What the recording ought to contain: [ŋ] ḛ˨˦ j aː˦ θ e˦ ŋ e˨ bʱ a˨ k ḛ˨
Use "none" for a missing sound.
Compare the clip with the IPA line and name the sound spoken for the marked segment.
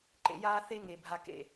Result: ǃ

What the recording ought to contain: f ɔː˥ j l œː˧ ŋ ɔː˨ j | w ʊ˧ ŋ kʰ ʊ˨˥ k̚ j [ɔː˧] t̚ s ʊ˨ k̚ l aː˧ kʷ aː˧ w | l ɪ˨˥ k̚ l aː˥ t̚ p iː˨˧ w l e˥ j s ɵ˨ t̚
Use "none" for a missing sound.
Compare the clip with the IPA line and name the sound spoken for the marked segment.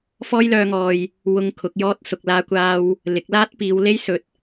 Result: ɔː˧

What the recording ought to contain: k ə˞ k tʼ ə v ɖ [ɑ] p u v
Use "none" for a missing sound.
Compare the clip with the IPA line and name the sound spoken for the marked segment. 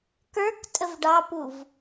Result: ɑ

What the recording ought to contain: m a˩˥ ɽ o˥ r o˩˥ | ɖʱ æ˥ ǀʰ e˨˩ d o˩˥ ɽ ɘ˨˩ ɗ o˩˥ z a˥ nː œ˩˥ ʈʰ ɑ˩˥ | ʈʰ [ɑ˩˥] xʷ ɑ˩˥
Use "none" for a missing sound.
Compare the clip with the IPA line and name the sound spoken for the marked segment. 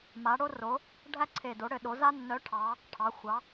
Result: ɑ˩˥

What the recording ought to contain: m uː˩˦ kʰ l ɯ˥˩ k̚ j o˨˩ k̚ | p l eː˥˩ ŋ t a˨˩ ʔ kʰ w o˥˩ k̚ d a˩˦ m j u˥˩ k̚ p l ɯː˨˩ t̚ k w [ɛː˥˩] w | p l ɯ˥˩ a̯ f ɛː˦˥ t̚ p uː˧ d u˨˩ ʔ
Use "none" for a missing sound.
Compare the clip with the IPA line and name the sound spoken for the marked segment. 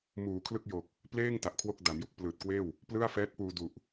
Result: eː˥˩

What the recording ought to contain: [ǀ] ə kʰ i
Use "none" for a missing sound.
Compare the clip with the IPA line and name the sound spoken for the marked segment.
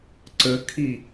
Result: ǀ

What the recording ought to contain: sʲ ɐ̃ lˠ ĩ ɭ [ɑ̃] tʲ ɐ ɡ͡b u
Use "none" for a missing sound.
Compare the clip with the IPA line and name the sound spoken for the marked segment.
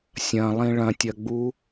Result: ɐ̃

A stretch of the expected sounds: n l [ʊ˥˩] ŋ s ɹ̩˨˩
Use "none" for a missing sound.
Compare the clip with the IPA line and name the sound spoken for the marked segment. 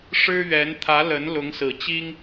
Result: ʊ˧˥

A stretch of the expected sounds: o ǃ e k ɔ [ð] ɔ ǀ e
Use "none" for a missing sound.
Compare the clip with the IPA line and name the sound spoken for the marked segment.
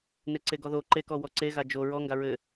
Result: w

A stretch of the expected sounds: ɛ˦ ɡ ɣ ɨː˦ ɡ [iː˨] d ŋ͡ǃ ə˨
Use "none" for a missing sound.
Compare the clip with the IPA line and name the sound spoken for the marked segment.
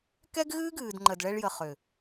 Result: ɨː˨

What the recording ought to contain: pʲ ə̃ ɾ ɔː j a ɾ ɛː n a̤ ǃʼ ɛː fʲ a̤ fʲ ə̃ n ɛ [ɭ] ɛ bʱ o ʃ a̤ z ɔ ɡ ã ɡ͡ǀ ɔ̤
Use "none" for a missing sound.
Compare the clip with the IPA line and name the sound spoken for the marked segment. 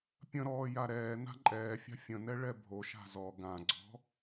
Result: ɭ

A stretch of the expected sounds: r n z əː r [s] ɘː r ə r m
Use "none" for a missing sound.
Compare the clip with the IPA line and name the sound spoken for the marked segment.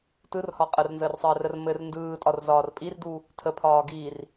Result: sˤ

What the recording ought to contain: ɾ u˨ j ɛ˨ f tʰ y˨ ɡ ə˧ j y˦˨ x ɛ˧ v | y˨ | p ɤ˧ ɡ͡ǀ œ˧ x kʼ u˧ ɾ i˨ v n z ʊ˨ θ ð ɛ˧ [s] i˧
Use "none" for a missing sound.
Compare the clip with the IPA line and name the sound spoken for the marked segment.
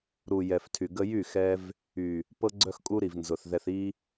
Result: θ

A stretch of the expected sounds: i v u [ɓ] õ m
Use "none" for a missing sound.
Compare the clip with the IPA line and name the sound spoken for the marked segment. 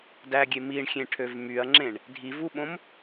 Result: ɓ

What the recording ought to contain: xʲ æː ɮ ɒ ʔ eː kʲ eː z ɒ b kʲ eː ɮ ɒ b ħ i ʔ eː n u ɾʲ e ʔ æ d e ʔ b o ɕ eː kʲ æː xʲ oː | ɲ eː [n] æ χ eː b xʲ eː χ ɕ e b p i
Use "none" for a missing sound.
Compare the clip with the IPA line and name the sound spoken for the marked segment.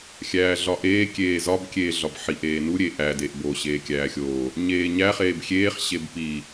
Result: ɲ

